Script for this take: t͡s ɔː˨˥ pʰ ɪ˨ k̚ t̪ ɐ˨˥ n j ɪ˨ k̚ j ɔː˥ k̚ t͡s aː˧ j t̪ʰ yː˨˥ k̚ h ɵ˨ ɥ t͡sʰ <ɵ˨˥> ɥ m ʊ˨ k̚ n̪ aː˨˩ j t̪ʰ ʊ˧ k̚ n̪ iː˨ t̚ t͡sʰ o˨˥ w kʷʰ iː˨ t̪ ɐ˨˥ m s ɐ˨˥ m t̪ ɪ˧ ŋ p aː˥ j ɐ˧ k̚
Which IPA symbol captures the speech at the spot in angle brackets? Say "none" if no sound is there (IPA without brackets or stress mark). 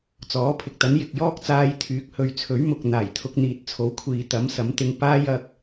ɵ˨˥